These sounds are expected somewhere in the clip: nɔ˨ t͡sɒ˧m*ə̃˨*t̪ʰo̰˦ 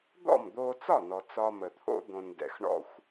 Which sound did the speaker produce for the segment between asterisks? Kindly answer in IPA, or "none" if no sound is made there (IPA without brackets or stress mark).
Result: ə˨